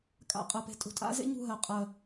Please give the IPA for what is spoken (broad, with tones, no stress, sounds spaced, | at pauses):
kʼ a̰˨ qʼ ɜ˨ p e̤˨ tʼ ṳ˨ tʼ a̰˦ z ḛ˦ ɲ ṳ˦˨ ɦ ɜ˨ qʼ ɜ˨